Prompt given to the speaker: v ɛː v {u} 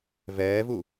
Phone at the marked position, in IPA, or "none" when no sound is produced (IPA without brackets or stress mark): u